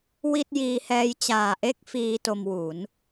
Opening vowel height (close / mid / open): close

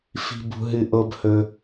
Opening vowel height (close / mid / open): close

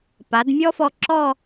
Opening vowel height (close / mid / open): open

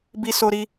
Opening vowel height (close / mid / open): close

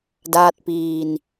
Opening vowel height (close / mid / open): open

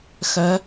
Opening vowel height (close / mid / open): mid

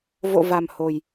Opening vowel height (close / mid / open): mid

